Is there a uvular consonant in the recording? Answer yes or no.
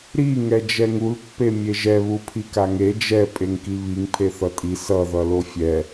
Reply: no